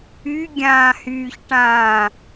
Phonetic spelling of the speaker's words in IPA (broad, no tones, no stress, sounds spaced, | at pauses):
y ɡʲ ãː h yː ç ʈ ãː